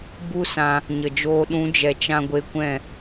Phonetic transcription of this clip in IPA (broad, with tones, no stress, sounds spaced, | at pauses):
b u˦ s ã˧ | ɲ ə˨ d͡ʒ oː˧ ɗ ũ˨˦ d͡ʒ ɛ˨ t͡ʃ ã˧ ɡʷ e˧ kʷ ɛ̃˦˨